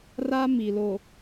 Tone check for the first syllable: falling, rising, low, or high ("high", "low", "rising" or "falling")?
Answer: high